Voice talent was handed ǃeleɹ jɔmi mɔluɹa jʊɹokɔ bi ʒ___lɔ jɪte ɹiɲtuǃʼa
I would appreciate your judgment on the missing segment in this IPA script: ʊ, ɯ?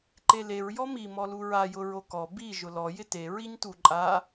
ʊ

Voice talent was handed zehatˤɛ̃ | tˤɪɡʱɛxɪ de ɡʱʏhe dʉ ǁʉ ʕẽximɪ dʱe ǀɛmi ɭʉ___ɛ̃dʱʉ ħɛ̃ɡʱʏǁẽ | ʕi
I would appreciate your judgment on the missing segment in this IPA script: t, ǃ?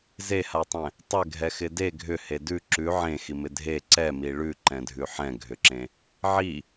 ǃ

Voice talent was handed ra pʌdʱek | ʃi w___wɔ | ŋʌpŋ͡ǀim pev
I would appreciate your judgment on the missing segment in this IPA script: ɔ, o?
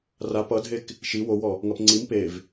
o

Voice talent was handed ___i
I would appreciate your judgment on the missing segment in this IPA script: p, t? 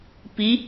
p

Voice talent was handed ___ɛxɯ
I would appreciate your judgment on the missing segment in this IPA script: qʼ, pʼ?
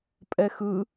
pʼ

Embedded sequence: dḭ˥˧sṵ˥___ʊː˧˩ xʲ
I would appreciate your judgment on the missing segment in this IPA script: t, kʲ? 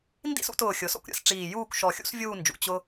t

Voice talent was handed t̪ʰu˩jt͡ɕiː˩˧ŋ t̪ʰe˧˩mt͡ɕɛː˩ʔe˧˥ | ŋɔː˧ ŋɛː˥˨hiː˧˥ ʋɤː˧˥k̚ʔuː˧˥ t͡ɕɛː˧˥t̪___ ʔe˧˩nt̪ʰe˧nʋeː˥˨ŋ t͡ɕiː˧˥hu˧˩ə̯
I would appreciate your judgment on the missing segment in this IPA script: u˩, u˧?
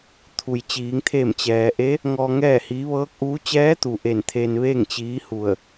u˩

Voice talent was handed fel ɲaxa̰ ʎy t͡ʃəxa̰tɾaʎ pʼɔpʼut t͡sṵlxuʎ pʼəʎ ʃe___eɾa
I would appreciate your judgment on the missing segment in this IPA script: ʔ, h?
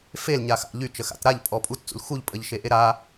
ʔ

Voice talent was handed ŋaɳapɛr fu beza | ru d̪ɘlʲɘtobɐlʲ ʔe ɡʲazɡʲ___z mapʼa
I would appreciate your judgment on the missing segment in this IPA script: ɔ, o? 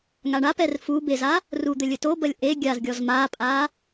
ɔ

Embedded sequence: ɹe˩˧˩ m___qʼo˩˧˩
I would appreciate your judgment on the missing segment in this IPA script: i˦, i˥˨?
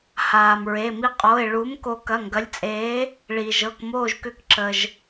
i˦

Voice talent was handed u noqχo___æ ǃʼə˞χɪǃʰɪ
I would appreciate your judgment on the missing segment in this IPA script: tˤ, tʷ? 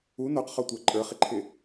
tʷ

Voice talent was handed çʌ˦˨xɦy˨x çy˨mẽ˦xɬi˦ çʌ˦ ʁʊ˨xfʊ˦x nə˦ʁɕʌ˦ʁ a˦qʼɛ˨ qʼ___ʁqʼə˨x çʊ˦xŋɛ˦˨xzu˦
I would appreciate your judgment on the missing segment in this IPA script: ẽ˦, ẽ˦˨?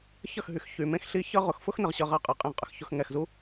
ẽ˦˨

